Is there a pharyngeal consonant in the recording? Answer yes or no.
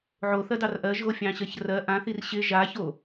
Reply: yes